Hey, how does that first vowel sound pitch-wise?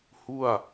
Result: falling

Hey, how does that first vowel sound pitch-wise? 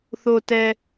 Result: low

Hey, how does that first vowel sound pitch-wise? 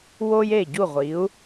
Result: high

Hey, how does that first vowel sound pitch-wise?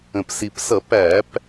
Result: low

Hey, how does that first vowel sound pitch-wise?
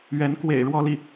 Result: rising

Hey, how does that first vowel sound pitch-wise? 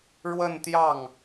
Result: falling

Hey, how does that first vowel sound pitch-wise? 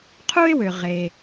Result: high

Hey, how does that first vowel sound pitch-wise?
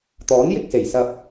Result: rising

